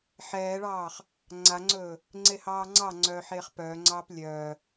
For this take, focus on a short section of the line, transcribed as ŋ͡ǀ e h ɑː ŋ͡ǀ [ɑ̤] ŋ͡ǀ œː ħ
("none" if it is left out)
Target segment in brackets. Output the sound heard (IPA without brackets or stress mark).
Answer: ɑ